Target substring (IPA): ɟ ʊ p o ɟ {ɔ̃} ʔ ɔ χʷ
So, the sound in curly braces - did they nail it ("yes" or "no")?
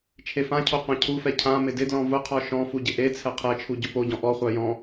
yes